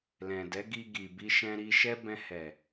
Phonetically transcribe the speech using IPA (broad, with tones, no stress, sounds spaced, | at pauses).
l ɛ̃˨ d ɛ˨˦ ɡ i˧ ɡ i˨ b i˧ ʃ ɛ̃˧ ɾ i˧ ʃ ɛ˦ b ɛ̃˧ h ɛ˨